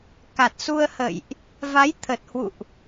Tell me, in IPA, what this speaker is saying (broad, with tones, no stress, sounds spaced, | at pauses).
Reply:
k a˨˩ t̚ s u˧ ə̯ h ə̰˧˨ j ʔ | v a˨˦ j t̪ʰ ə˨˩ t̚ h w ṵ˧˨ ʔ